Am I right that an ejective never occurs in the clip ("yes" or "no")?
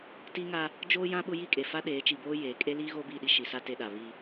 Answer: no